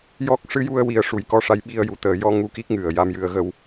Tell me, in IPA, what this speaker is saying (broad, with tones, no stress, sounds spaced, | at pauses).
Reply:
j ɔ˦˥ k̚ ʂ ɨ˧˥ j u˧ ə̯ w i˨˩˦ ə̯ ʂ u˨˩˨ j k ɔ˧ ʂ a˧˥ j ɓ i˧ ə̯ j u˨˩˦ t̪ əː˨˩˨ j ɔ˧ ŋ u˧ k i˦˥ k̚ ŋ ɨ˨˩ ə̯ j a˧ m j ɨ˧ ə̯ ɣ ə˧ w